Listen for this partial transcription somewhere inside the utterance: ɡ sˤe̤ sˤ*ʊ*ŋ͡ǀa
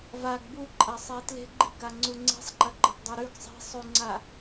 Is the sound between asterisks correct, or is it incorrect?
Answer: incorrect